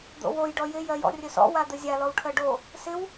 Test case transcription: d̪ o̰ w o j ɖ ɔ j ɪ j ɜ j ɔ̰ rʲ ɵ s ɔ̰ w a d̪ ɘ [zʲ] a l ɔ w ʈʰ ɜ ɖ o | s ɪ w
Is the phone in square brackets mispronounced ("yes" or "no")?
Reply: no